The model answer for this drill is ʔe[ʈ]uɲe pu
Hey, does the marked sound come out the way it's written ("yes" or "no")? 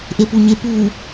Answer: no